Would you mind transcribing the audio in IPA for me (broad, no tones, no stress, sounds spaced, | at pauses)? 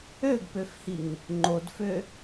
ø ɡ p ø f h i ŋ | ŋ͡ǃ o d f ø